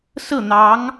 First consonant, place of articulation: alveolar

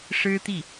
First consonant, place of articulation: retroflex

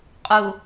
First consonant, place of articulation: uvular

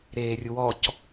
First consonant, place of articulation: alveolar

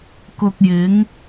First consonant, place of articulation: velar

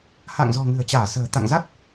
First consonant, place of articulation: glottal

